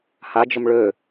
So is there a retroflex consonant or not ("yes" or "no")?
yes